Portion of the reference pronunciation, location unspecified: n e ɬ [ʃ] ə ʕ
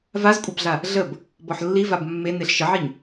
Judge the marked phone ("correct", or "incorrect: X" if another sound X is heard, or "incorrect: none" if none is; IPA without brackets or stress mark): correct